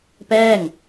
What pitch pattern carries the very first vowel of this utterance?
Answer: falling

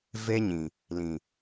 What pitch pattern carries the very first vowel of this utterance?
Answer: high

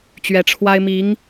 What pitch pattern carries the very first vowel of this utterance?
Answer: rising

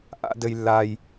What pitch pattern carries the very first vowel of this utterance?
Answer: high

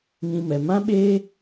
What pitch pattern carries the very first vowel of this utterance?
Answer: high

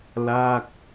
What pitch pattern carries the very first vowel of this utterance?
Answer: falling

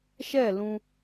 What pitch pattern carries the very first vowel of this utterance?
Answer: falling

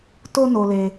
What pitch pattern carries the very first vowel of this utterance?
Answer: high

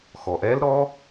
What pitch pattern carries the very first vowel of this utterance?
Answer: low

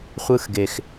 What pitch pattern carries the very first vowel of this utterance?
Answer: high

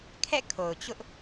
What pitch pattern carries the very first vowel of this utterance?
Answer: falling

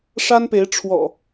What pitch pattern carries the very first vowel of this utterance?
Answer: high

